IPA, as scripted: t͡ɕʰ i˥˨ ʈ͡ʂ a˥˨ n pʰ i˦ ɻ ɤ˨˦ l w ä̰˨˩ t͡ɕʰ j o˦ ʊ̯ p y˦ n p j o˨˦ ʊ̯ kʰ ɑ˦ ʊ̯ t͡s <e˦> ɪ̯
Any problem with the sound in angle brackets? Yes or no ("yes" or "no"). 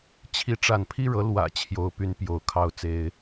no